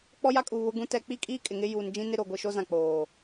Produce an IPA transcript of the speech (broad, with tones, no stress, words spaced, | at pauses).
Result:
k͡pɔ˦ja˦kʼu˨ βʊ˦ɡũ˦tɛ˦ k͡pi˦kʼiː˦ kʼɪ˨ŋɪ˦ juː˨nd͡ʒĩ˦nɪ˦ ɾo˨ɡʷi˨ʃo˦ zã˨k͡poː˨